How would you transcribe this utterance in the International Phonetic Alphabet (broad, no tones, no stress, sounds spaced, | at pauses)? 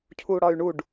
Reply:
cʰ u ɽ ɒ y̯ ɳ u ɖ